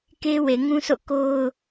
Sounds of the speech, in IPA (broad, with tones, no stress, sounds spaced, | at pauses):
k e˦ w e˨ ŋ ũ˦ s o̰˦˨ k o˦ ʊ̯